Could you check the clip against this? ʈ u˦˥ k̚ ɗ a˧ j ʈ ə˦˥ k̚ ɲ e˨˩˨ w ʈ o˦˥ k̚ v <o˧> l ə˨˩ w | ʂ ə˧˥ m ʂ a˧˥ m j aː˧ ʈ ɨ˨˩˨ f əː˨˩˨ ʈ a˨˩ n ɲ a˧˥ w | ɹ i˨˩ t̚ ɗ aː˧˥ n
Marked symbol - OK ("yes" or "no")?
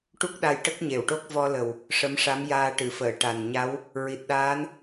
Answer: no